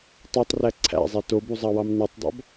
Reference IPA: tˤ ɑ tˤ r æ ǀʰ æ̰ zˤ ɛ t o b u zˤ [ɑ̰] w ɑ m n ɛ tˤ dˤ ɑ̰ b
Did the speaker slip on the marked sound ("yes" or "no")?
yes